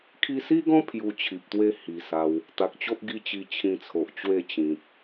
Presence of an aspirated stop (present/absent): present